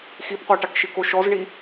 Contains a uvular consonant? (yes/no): yes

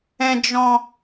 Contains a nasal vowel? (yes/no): yes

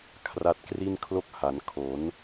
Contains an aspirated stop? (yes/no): yes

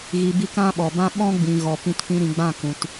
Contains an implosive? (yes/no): yes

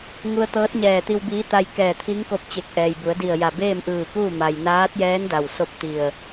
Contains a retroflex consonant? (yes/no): no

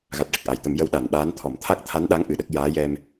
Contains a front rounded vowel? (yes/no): no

